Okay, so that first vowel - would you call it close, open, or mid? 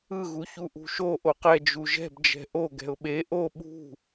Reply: close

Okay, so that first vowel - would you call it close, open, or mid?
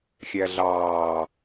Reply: open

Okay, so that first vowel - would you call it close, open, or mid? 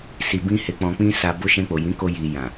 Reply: close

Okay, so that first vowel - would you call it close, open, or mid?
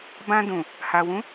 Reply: open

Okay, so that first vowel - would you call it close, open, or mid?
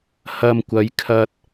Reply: open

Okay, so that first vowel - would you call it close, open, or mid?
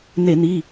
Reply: mid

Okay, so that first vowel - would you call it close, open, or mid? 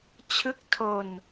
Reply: close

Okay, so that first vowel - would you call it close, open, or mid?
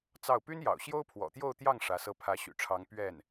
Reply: open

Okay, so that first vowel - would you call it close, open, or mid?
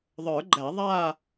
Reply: mid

